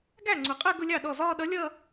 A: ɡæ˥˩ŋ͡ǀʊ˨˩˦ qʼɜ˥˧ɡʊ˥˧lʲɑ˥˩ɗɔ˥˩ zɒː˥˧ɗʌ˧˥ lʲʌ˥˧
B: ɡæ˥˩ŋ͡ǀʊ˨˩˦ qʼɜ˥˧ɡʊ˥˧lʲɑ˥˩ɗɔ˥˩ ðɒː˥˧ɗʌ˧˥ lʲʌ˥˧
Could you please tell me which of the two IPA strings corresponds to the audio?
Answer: A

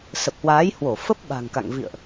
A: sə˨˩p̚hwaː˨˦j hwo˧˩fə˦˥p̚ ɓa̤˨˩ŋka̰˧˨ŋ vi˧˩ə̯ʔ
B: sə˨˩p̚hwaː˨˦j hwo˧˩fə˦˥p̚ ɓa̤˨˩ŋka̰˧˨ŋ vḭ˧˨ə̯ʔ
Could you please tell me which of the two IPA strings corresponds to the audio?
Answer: B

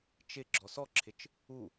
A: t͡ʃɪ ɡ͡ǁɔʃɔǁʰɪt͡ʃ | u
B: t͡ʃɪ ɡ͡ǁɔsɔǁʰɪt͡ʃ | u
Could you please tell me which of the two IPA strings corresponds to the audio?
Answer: B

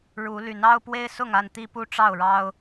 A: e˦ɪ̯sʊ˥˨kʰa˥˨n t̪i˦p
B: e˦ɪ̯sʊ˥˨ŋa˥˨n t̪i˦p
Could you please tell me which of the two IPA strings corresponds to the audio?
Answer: B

